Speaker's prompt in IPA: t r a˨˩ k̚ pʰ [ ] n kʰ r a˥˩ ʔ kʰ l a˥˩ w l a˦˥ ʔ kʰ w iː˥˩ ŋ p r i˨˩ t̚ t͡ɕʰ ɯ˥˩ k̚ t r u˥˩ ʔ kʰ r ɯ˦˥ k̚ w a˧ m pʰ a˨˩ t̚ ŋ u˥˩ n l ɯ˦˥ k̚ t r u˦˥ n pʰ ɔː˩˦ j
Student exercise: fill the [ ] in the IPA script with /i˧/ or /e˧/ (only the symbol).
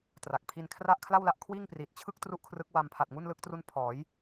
i˧